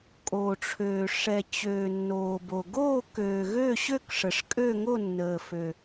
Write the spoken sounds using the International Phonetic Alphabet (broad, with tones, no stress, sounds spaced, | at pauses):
kʼ oː˨ ʈ͡ʂʰ øː˨ ʂ ɛ˨ t͡ɕ øː˨ nː oː˨ b o˨ ɡ oː˥˨ k øː˨ ɣ ø˥˨ ɕ ø˥˨ k ʂ ə˨ ʂ kʼ ø˥˨ ŋ o˥˨ nː əː˨ f ø˨